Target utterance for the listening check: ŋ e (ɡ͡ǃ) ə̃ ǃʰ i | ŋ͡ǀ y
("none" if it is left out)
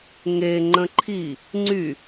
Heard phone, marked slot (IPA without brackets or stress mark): ŋ͡ǃ